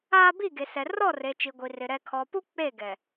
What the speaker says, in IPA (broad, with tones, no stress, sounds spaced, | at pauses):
aː˦ b i˦˨ ɡ e˨ s ɛ˨ r ɔ˦˨ r e˨ t͡ʃ i˨ ɡʷ i˨ r ɪ˨ ɾ ɛ˨ kʰ ɔ˨ p u˦ k͡p e˦˨ ɡ ɛ˨